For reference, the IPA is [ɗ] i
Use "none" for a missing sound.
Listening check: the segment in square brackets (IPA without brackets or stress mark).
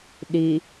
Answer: ɗ